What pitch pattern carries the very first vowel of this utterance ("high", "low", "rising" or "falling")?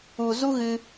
low